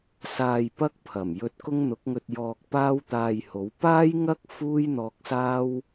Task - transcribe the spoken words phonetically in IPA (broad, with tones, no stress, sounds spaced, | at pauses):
s aː˧ j p ɐ˥ k̚ pʰ ɐ˨˩ m j ɵ˧ t̚ k ʊ˥ ŋ n̪ ʊ˨˥ k̚ ŋ ɵ˧ t̚ j ɔː˧ k̚ p aː˥ w t̪ aː˧ j h o˨˥ w p aː˥ j ŋ ɐ˥ k̚ f uː˥ j n̪ ɔː˧ k̚ s aː˥ w